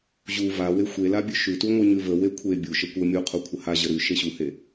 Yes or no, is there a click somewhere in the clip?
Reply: no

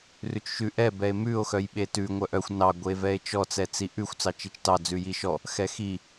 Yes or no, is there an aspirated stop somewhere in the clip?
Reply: no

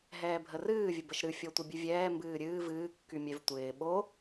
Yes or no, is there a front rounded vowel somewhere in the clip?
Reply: yes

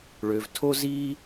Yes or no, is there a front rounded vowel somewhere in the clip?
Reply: yes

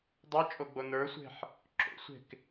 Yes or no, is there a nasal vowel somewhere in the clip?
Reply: no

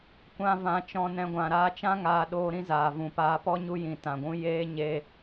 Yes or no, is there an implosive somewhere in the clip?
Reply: yes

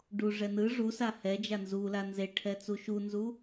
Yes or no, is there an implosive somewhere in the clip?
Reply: no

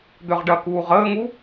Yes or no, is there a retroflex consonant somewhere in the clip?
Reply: yes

